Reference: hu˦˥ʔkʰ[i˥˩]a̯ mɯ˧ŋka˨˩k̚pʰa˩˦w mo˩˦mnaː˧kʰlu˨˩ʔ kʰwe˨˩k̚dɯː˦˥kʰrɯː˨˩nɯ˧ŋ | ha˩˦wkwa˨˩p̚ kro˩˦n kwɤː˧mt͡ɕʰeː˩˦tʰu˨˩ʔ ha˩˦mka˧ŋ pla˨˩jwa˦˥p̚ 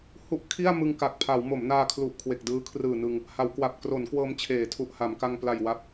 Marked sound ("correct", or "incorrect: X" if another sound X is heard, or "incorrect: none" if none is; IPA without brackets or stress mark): correct